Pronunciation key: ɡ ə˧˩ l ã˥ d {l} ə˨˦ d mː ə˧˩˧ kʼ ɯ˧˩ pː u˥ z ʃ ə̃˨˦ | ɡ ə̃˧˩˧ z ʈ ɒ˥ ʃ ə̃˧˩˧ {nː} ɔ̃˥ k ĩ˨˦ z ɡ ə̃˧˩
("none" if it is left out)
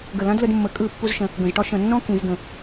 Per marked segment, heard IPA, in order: l, nː

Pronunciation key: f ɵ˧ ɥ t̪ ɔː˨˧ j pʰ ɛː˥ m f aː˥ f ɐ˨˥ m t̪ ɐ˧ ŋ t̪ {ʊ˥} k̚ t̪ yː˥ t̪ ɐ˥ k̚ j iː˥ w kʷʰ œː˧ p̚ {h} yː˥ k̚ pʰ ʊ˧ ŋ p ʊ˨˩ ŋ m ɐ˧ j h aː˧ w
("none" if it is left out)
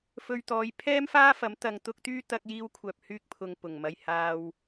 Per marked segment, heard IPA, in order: ʊ˥, h

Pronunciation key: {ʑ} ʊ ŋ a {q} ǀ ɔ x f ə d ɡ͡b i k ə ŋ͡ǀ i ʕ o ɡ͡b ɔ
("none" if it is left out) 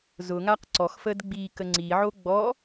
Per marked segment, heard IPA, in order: z, q

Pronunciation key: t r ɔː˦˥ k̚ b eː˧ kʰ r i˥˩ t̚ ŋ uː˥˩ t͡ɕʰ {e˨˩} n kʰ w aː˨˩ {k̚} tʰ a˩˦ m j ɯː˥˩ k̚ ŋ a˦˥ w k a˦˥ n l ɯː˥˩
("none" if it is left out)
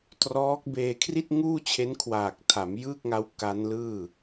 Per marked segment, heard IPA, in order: e˦˥, k̚

